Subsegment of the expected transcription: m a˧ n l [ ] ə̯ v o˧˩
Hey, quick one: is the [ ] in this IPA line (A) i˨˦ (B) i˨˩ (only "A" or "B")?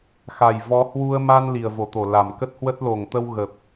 B